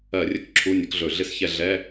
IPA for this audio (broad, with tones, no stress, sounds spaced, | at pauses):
ɜ˧˩˧ rʲ ə˦˨ k ǁʰ u˧˥˧ nʲ ə˨˥ k ɮ ɵ˧˩˧ ɮ ɪ˦˨ s ç ɛ˦˨ ɮ ɛ˧˥˧